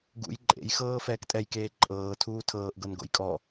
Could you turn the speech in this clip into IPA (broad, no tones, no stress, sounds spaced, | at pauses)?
ɡ ṵ j ǃʼ ḛ j x ɤː f ɛː k tʼ ɛ j k eː ǃʼ ɤː tʰ uː tʰ ɤː ʔ ɡ ɤ n ɡ o̰ j kʼ ɔ